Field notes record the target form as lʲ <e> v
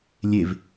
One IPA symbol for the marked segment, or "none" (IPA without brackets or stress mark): e